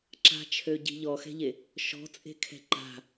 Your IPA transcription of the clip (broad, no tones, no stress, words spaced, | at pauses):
ǁa̤t͡ʃʰøɟi̤ ʎɔxɛ̤ʎe | ʃɔ̤t͡sʼe̤kʰɛ̤ ǃa̤